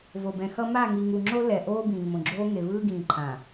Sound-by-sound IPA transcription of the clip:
vo˨bɛ̃˨xʌ˦ ma˦˨ŋi˨ŋu˨ŋ͡ǁo˦ lɛ˨ ʔoː˦bĩː˨mõ˨ɡ͡ǁoː˦ ŋe˨vɯː˦ɡĩː˨ǃʰã˨

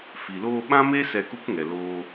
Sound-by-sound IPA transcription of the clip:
fi˨loː˧ ɓã˦me˦ sɛ˧ku˦kŋɛ˨ loː˧

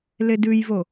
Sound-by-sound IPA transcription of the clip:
ledʉjvo

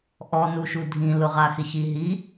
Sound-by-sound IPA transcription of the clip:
ʔɔnuʃu dʱĩ lʊʁaxɪçi ɦi

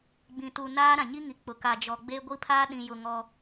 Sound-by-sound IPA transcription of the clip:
ɡ͡bĩ˨tu˨ naː˦ ɾã˨ɲi˦ŋi˨ k͡pʊ˨ ka˨d͡ʒɔ˨ɡ͡be˦ ɡʷi˦pʰaː˦ ɗĩ˨jʊ˨ ŋɔ˦

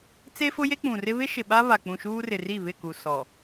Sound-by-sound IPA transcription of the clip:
t͡se˦fʊ˦ je˦k͡pũ˨rɪ˦ βɪ˦ʃɪ˨ ɓa˦βa˨k͡pũ˨ ʃuː˦rɪ˨ri˦˨ βɪ˦˨ku˨ sɔ˨

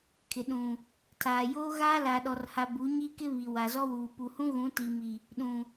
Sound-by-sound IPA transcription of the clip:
kʰɪ˨ɗũ˨ | tʰaː˨joː˦ɣaː˦ la˨ɗɔ˨rha˨ bu˨˦ɲi˦kɪ˦βi˨ wa˨zɔ˦wuː˨ pu˨hũ˦ɣũ˨˦ ti˨mi˨ | ɗũ˨

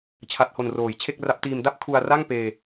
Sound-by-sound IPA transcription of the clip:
t͡ɕʰa˦˥t̚ho˧nroː˨˩j t͡ɕʰe˥˩k̚ra˦˥p̚tiː˧m da˥˩p̚kʰu˧a̯ra˥˩ŋ peː˧

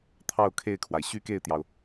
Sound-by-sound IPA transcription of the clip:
t̪ʰɑ˥˧ʊ̯kʰe˥˩ɪ̯kʰwa˩ɪ̯ ɕy˥˧ke˥˩ɪ̯t̪jɑ˩ʊ̯

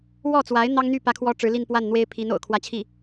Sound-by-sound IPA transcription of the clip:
wɔ˥˩t͡swa˧˥ɪ̯ n̪ɑ˥ŋ n̪y˥˩ pä˥kʰwɔ˥ ʈ͡ʂɻ̩˧˥li˥˧npwa˥˩n n̪we˥ɪ̯pʰi˧˥n o̰˨˩ʊ̯kʰwä˧˥t͡ɕʰi˥˩

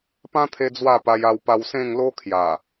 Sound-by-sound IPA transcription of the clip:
pã˦t̪ʰe˧ d͡zwa˥˧pa˧ja˧w pa˧wsẽ˥˧ŋlo˦ kʰja˨˩

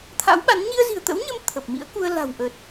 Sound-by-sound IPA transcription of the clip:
t̪ʰa̰˧˥wɓa˨˦n ɲi˧ə̯zi̤˨˩ə̯t̪ə̰˧˥wɲə˧m t̪ʰə˨˩p̚mḭ˧˥ə̯ku˧ə̯ la̤˨˩wʔə˨˩t̚

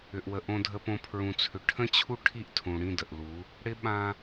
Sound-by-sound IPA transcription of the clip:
ʏ˨ʔwə˨ ʔõ˨dʱə˨põ˨ pʰɹũ˨t͡sʰʏ˨ ʈʰə̃˦t͡ɕʰu˦ ʈʰi˦ʔtʰũ˨ ɽĩ˦˨də˨ʔlu˨˦ | ɽɪ˦ɓã˦

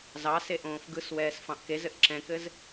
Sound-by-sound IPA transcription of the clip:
zɑse ʔõːfɡɯswɛːs fɑ̃ʔkezɘʔ ǁɛ̃kɘz

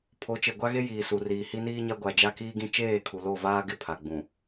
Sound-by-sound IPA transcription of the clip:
pʰo˨˦t͡ʃe˨ɡʷa˦ɣe˦ jiː˨su˨riː˨ hi˦niː˦ɲa˦ ɡʷa˦ d͡ʒa˦kiː˦ɡĩ˦ t͡ʃeː˦˨kʰu˨lo˦˨vaː˦ ɡɪ˦˨ pʰa˨ɡ͡bũ˨

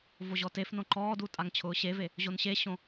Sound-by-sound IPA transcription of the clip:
voʑɔtefnõ ǃɔːdu tʼaŋt͡ɕʰʊːɕeve | ʑonɕeɕõ

